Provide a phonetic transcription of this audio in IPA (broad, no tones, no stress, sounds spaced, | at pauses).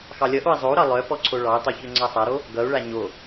x ɑ lʲ ʌ ʔ o i̯ zˤ o u̯ ɾ ɑ lˠ œ p ɔ ǀʰ o ɭ ɑ y̯ tˤ o ç ø ŋ͡ǀ a sˤ a ɾ o | ɡ ʌ u̯ ɭ a ɲ o